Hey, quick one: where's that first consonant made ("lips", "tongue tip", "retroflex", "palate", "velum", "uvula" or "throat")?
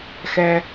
velum